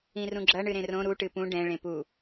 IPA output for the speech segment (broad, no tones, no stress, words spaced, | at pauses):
ĩrũɡ͡ǁɐ ɳɨɾẽrõ ɾu ʈɨpũ ɖɛ̃ ɭẽpu